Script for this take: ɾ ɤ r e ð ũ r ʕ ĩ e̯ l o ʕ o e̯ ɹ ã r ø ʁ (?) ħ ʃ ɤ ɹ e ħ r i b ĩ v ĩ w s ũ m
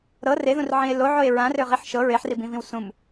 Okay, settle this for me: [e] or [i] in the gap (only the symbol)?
i